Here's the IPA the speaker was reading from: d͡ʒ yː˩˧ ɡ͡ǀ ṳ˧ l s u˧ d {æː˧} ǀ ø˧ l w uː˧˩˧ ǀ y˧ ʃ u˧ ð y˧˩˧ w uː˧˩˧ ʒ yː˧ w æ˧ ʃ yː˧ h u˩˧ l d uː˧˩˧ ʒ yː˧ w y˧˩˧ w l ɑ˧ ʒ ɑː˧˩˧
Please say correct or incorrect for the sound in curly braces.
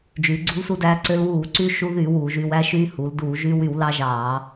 correct